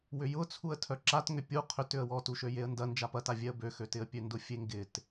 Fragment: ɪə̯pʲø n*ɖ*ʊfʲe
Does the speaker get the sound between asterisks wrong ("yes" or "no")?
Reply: yes